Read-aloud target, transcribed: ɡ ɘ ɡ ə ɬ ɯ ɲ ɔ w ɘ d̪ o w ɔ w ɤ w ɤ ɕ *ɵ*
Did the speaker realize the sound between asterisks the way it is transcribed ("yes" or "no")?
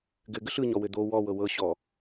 no